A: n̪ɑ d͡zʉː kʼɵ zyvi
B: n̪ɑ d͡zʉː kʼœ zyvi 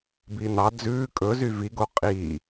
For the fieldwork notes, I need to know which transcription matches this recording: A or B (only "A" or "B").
A